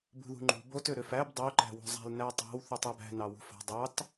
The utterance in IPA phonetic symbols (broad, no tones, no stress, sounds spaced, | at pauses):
b ṳ ð ṳ ŋ͡ǃ ṳ b o t ø ɾ ø f æ b dˤ ø ǃ æ̤ w o̤ zˤ æ̤ l n æ tˤ æ̤ w θ y tˤ æ b æ̤ n ɑ w ṳ f ɑ̤ dˤ ɑ t